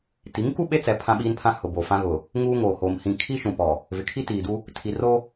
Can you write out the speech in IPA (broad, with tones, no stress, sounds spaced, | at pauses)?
t i˨˦ ŋ k u˦ ɓ e˦ t͡s ɛ˨ pʰ ã˦ ɓ iː˦ n pʰ ã˦ h ʊ˨ b o˨ f ã˦ ɣ ʊ˨ | ŋ uː˦ ŋ oː˨ h oː˨ m h ĩ˨ kʰ i˦ ʃ ũ˨ p ɔ˨ | v ɪ˨ kʰ i˦ t iː˨ d u˦ | tʰ i˨ r o˦